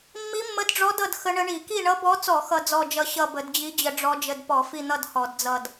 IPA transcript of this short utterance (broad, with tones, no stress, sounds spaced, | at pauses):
mː i˧˥ mː ə˧˥ d ɖ͡ʐ ɔ˧˥ d ʌ˦˨ d x ə˧˥ ɳ ə˧˥ ɳ i˧˩˧ k i˦˨ ɳ ʌ˧˥ b ɔ˧˥ t͡s ɔ˧˩˧ x ʌ˦˨ d͡z ɔ˦˨ d͡ʒ ʌ˦˨ ɕ ʌ˦˨ b ə˧˩˧ d d͡ʑ i˧˥ d͡ʑ ə˧˩˧ ɖ͡ʐ ɔ˧˥ d͡ʒ ə˦˨ d p ɔ˧˩˧ f i˦˨ n̪ ʌ˦˨ d h ɔ˧˩˧ d d͡z ʌ˦˨ d